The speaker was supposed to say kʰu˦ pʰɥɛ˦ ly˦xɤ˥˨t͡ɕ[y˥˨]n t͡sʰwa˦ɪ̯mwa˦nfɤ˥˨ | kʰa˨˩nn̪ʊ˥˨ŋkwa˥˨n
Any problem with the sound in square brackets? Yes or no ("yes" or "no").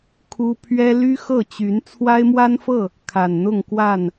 yes